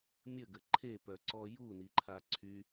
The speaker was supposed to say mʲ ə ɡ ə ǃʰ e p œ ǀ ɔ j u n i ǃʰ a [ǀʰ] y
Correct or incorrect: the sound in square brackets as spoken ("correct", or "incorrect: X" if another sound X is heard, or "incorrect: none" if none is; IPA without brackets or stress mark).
correct